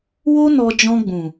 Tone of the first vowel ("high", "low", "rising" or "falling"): high